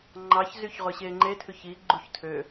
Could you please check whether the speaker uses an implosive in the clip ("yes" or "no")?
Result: no